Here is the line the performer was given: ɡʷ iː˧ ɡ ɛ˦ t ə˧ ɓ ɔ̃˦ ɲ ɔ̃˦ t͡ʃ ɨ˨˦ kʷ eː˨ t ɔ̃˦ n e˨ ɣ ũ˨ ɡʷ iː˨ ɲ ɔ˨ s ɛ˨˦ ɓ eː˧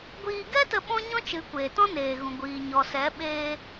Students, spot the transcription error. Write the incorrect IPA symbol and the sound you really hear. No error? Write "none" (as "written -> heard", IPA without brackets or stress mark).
e˨ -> eː˨